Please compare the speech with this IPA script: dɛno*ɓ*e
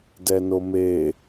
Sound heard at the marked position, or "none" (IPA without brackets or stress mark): m